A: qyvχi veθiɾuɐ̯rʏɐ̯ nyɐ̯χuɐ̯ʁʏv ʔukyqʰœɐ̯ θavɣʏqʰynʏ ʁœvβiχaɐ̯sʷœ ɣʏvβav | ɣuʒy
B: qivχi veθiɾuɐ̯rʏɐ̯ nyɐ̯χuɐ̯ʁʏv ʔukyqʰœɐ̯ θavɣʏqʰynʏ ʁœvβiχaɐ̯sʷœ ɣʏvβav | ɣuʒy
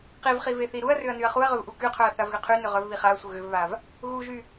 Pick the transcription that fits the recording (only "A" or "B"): B